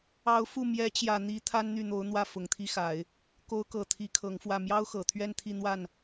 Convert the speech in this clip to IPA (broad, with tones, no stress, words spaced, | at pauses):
ɑ˧˥ʊ̯ fu˥˩ mjɛ˧˥t͡ɕjä˨˩ n̪i˧˥ t̪ʰa˥nn̪y˥˩n̪o˧˥ʊ̯n̪wä˥˩ fʊ˨˩ŋt̪ʰi˥xa˨˩˦ɪ̯ | ko˧˥ʊ̯kɤ˨˩ t̪ʰi˧˥kʰɤ˧˥ŋfwä˥˩ mjɑ˥ʊ̯xɤ˨˩t̪ʰɥɛ˥˧n t̪ʰi˥˧n̪wa˥˩n